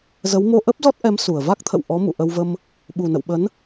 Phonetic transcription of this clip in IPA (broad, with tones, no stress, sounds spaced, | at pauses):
z ə˨˦ w m o˧ ʔ ə˦˥ p̚ z ɔ˦˥ t̚ ʔ ɛ˨˦ m s u˨˩ ə̯ v a˦˥ k̚ t̪ʰ ə̰˧˨ w ʔ ɔ˨˦ m ṵ˧˨ ʔ ə˧ w v ə˧ m | ɓ u˨˩ n ə̰˧˨ w ɓ ə˨˦ n